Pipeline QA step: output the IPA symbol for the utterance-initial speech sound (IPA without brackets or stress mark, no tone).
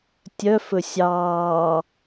tʲ